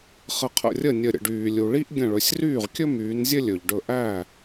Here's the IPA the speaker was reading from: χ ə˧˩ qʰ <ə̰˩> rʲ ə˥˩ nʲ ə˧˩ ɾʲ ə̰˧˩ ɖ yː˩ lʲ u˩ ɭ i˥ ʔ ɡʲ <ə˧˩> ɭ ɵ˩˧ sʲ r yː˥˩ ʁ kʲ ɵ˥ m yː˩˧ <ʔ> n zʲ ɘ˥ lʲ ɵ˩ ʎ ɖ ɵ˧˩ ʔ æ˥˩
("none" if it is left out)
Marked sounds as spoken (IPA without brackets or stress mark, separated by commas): ə̰˧˩, ə̃˧˩, none